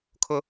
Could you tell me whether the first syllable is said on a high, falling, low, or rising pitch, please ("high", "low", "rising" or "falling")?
high